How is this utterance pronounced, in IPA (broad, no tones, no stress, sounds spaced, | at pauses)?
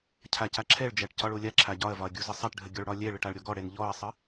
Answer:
cʰ a c a ǁʰ ɛ ɭ d͡ʒ æ ʈ c ɒ ɭ o lʲ a ǁʰ a ɟ ɒ ɐ̯ v ɒ ɐ̯ ɡʲ u z ə sˤ a ʈ ɖʱ ə ɡʲ ɔ ɭ ɽ ɒ lʲ ɛ ɭ ə ʈ a ɭ ɾʲ ɔ ɡ ɔ ɽ ɛ n ʎ ɔ ɐ̯ sˤ ə